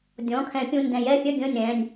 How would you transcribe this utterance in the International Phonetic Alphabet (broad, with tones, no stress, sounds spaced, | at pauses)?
dʲ ɔ̃˩˧˩ kʰ ɛ̃˨˩˦ pʲ ũ˩˧˩ n d ɛ̃˨˩˦ j ɛ˩˧˩ fʲ œ˥˩ ɡʲ ə̃ː˥˩ nʲ ɾ ɛ̃˩˧˩ nʲ